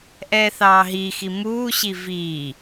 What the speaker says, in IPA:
ʔ ɛː θ ɑː ɦ iː x i m uː ɕ i v iː

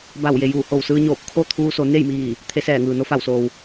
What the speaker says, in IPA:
b a˧˩ w j e˩ j uː˧˩ h o˧˩ w s ɯː˧ ɲ oː˧˩ p̚ kʰ o˥˨ t̪ʰ uː˧ s o˩˧ n e˥˨ j m iː˧˩ | t̪ʰ e˧˥ s ɛː˧˩ ŋ ɯː˩ n o˧ f a˧˩ w s oː˩ w

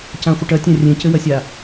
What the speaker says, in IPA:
c ã χʷ i ʈ ɐ tʲ ã rʲ ẽ c ɘ w ɐ sʲ a

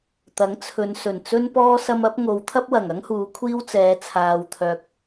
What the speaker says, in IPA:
t̪ ɐ˨˥ ŋ t͡sʰ ɵ˨˧ n s ɵ˨˩ n t͡s ɵ˥ n p ɔː˥ s ɐ˧ m ɐ˨˥ p̚ ŋ o˨˧ w t̪ʰ ɐ˥ p̚ w ɐ˨˩ ŋ ɐ˥ ŋ h uː˨˧ kʷʰ iː˥ w t͡s ɛː˨˧ t͡sʰ aː˨ w t̪ʰ œː˨ k̚

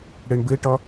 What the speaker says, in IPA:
ɽ ɘ ɳ b ɘ ʈ ɒ

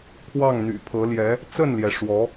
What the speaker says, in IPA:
kʰ w ɑ˥˩ ŋ n̪ y̰˨˩ pʰ ɤ˧˥ l j ɛ˧˥ | t͡s ə˥˩ n l j ɛ˩ ʂ w ɔ˧˥

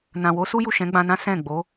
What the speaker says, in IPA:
n ã˨ w o˨˦ s u˦ j u˦˨ ʃ ɛ̃˨˦ ɡ͡b ã˧ n ã˦ s ɛ̃˦˨ ɡ͡b o˨˦

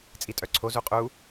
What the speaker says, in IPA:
t͡sʼ i tʼ œ ǀʰ o z u qʼ u

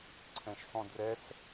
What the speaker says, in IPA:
ǀʰ ɛ̃ ʃ sˤ ũ d r ɛ s

